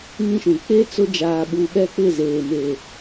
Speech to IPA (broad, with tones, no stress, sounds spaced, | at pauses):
ŋ ĩ˦ ʃ ũ˨ k͡p e˦ t͡s ʊ˦ d͡ʒ aː˨ ɓ u˨ ɓ ɛ˦ k͡p ɪ˦˨ z eː˨ m e˨